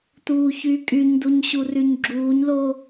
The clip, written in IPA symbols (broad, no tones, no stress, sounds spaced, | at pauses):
t uː ç yː kʼ y ɲ d u ɲ ɕ u r y ɲ ɡ͡ǁ uː ɲ l o